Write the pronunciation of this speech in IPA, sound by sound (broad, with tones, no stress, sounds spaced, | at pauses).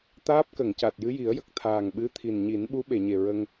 t̪ aː˦˥ p̚ k ə˨˩˨ ŋ c a˨˩ t̚ j ɨ˧˥ j i˨˩˦ ə̯ j ə˨˩ k̚ t̪ʰ aː˨˩ ŋ ɓ ɨ˧˥ t̪ʰ i˨˩ n ɲ i˨˩˦ n ɓ u˧˥ ɓ e˨˩˨ ɲ e˨˩ ɹ ə˧ ŋ